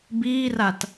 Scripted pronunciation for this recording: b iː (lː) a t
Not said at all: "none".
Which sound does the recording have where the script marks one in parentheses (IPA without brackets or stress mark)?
r